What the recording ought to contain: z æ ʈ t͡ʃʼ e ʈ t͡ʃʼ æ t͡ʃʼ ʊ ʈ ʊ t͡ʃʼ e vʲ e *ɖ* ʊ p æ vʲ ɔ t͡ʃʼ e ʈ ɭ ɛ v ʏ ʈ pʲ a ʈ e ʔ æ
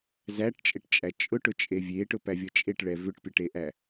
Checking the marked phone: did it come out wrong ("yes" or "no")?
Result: yes